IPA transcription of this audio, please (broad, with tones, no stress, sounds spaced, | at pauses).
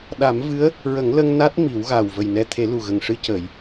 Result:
ɗ a˨˩˦ m v ɨ˧˥ ə̯ | ɹ ə˨˩˦ ŋ l ə˧ ŋ n a˦˥ t̚ m i˨˩˦ w ɣ a˨˩ w v ə˨˩ j n ɛ˧ t̪ʰ e˨˩˦ l u˨˩ ɣ ə˨˩ ŋ ʂ ɨ˧ c ə˨˩˨ j